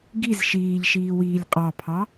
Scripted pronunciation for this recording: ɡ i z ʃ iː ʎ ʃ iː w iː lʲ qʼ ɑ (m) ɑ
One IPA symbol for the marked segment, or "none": pʰ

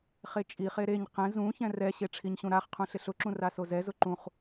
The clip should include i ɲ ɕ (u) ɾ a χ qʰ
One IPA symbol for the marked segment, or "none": ũ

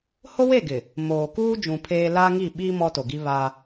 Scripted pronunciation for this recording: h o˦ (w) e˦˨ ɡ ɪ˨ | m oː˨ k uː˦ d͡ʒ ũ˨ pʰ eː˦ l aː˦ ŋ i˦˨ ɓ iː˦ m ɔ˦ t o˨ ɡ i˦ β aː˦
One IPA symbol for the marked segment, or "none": w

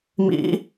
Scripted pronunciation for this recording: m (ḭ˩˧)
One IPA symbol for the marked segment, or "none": ḭ˩˧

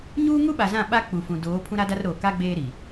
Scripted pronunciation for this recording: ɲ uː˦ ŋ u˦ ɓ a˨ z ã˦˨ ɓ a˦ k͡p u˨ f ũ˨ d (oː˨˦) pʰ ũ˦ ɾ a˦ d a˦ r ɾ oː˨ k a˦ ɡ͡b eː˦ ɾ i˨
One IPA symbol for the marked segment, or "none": oː˨˦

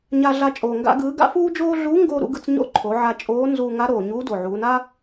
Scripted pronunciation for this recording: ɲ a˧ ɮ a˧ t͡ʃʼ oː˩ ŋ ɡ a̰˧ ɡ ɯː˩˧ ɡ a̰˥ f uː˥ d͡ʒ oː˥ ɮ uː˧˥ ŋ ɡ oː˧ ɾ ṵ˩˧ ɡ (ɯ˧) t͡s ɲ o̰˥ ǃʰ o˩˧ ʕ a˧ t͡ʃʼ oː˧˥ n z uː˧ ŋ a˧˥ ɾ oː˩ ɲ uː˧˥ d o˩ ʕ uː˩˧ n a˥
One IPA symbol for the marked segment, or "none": ɯ˧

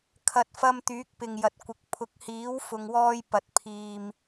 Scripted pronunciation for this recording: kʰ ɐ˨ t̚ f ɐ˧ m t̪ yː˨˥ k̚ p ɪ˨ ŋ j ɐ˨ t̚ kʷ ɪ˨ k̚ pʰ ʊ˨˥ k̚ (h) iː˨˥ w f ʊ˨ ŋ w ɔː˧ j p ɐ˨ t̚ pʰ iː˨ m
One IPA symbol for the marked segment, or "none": h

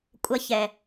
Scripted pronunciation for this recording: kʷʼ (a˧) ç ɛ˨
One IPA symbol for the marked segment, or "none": ɐ˧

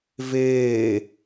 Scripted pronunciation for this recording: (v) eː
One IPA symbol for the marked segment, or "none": v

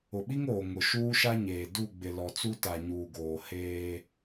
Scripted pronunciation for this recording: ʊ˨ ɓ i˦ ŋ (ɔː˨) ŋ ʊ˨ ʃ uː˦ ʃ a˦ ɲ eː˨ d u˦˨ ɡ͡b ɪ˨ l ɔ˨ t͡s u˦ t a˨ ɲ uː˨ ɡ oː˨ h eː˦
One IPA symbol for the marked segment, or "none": oː˨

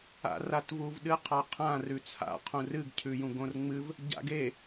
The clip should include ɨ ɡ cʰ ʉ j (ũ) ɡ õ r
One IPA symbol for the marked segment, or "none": ũ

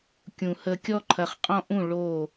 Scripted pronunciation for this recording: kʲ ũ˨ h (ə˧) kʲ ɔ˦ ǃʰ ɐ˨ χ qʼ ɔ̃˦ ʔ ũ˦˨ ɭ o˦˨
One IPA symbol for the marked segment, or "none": ə˧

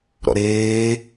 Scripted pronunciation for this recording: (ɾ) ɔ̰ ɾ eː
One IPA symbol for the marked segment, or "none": ɾ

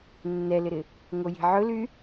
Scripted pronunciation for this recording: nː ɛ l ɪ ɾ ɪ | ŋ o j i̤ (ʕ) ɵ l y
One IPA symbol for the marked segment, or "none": ʕ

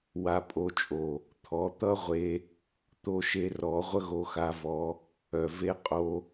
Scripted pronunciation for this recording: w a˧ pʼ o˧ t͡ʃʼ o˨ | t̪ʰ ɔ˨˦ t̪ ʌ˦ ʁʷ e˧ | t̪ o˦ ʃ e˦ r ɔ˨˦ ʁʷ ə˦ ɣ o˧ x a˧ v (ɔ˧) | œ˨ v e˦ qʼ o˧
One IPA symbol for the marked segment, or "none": ɔ˧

